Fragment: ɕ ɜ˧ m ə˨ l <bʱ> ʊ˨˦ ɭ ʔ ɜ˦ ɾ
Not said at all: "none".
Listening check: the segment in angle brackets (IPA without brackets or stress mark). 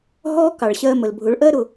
bʱ